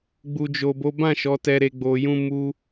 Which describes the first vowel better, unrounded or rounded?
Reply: rounded